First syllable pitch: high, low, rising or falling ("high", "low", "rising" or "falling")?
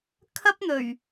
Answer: high